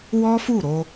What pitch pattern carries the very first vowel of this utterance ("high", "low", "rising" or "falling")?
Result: high